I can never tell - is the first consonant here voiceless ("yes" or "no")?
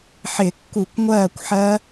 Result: yes